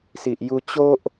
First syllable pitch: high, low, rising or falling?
low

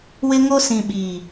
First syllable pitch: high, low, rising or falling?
high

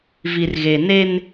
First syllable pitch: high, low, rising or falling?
low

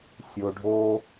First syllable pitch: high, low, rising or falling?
low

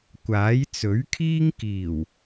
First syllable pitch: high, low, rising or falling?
rising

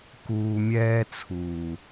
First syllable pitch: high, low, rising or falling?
low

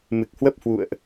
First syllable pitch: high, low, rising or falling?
low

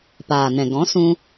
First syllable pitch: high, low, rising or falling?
low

